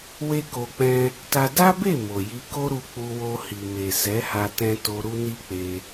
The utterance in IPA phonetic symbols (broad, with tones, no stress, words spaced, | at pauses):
we˦ko˧k͡pɛ̃˦ | ta˦ da˦be˦˨ mo˨ji˧ko˦ɾu˧ k͡pu˧wo˧hi˨ me˨ sɛ˨˦ha˧tɛ̃˧to˧ ɾu˦ni˦k͡pe˧